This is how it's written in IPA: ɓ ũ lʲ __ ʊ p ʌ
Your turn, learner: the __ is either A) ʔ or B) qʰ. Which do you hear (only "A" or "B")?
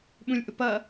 A